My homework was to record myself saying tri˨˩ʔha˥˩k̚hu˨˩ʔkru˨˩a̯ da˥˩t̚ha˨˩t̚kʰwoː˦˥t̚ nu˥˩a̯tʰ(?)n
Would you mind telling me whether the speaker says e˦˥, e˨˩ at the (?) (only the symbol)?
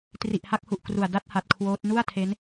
e˦˥